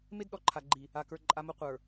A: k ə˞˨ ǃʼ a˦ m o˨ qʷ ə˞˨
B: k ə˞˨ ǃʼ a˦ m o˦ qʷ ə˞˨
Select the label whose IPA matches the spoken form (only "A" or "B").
B